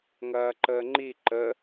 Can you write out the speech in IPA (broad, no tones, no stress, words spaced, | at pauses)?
ŋɐːǃəːŋ͡ǃi ǃə